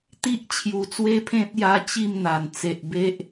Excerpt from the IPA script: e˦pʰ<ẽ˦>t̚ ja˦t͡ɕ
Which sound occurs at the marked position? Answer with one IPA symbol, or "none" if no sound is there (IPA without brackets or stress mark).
ẽ˦